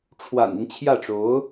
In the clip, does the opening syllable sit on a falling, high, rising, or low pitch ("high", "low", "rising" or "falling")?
low